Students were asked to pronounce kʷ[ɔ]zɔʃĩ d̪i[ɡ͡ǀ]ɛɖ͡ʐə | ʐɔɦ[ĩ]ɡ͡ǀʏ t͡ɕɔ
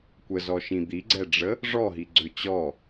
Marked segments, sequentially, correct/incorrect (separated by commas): incorrect, correct, incorrect